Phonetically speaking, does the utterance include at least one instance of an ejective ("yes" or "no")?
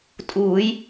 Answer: yes